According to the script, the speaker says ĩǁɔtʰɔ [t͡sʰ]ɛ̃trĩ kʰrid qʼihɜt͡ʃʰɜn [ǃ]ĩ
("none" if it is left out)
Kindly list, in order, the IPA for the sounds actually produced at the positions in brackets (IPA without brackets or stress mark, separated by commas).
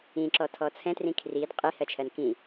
t͡sʰ, k